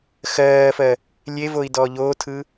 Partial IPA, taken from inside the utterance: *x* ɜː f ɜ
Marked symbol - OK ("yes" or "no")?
yes